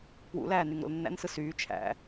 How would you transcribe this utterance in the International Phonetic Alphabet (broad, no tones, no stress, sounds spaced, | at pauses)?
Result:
p w ṵ l æː n y ŋ ɾ o̰ l nː æ̰ n s ɯ s yː t͡ʃʰ æ̰